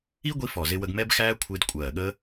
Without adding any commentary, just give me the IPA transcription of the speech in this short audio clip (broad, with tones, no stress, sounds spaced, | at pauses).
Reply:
i˦˥ ɡʷ i˧ f ɔ˨˩ z ɪ˧ w ə˧ ɡ m ɛ˦˥ b x æː˦˥ kʷʰ ɪː˧ d kʷʼ ɜː˨˩ ɠ ə˦˥